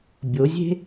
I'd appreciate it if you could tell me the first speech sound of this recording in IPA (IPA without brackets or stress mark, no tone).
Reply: bʲ